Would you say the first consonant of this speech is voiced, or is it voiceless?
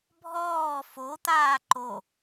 voiced